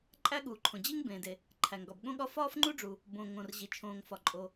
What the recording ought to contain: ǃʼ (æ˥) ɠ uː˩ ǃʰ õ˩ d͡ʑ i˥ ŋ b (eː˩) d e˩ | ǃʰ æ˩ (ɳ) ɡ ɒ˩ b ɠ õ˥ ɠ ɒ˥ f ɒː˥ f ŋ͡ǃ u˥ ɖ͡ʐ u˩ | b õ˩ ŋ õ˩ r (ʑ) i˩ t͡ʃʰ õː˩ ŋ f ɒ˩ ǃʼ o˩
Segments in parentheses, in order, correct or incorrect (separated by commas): correct, incorrect, incorrect, correct